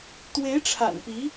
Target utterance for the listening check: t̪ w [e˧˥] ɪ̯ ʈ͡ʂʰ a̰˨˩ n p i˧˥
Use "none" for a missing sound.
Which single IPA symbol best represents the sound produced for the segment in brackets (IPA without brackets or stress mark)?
e˧˥